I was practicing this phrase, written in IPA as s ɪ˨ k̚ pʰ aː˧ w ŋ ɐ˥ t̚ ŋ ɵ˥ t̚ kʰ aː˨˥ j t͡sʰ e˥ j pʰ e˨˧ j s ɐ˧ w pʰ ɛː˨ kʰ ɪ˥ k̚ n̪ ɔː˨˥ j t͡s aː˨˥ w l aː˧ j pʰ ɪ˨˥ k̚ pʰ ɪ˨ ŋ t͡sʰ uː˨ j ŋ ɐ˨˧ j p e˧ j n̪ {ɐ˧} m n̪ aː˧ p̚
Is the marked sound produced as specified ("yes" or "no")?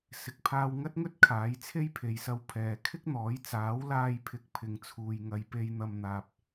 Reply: yes